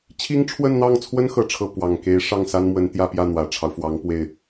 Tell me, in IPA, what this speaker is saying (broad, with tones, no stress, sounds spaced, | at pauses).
t͡ɕʰ i˥ ŋ ʈ͡ʂʰ w ə˥˧ n n̪ ɑ˥˩ ŋ t͡sʰ w ə˥ n x ɤ˥ ʈ͡ʂʰ ɤ˥˩ p w ɑ˨˩ ŋ k e˧˥ ɪ̯ ʂ ɑ˥˩ ŋ s a˥ n m w ə˧˥ n t̪ j ä˥˧ p j ä˥˩ n̪ w ä˨˩ ʈ͡ʂʰ ɑ˦ ʊ̯ f w ɑ˧˥ ŋ p w e˥˩ ɪ̯